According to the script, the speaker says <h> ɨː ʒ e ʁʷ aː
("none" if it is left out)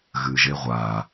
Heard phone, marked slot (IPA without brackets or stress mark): ɣ